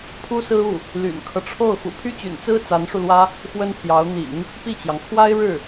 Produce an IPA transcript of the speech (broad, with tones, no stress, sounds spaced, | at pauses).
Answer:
pʰ u˥ s ɹ̩˥ u˥˩ | l y̰˨˩ n kʰ ɤ˦ ʈ͡ʂʰ o˥˩ ʊ̯ x ṵ˨˩ pʰ y˥ t͡ɕ y̰˨˩ n t͡s ɹ̩˥ t͡s a˧˥ n ʂ u˧ l w ä˥ | x w ə˥ n pʰ j ɑ˧˥ ʊ̯ n̪ ḭ˨˩˦ ŋ | p i˥˩ t͡ɕ j ɑ˩ ŋ kʰ w a˥ ɪ̯ ɻ ɻ̩˥˩